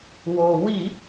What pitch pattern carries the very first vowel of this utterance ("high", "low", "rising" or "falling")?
low